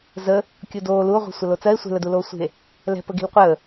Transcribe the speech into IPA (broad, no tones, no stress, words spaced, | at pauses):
zə | kʲudoː luo̯ʁʷi̤ sʷəlot͡sɜe̯ sʷe̤ləduloː sʷi̤e̯ | lɛ̤ pəɡi̤lqʷəː